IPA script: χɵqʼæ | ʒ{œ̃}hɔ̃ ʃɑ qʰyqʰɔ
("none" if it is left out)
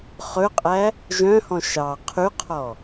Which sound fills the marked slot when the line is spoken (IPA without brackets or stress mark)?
œ̃